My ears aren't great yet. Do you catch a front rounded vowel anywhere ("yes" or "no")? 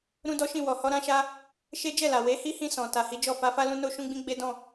no